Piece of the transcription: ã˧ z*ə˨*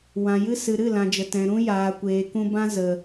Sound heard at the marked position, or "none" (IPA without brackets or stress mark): ə˨